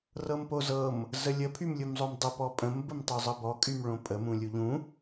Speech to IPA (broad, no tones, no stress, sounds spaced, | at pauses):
r ɤ m p o z ɤ m | z ə lʲ ə pʰ y m lʲ u m zˤ o m dˤ ə p ɔ pʼ ə̃ m b ə m tˤ o zˤ ɤ b ɔ kʼ y m ɭ õ pʼ ə m ũ lʲ u ʎ ũ